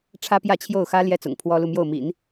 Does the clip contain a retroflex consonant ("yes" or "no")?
yes